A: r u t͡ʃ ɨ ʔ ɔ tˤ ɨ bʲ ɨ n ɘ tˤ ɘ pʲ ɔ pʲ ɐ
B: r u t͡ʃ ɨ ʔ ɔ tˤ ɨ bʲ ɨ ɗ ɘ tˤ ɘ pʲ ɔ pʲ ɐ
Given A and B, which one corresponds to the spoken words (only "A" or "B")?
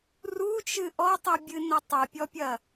A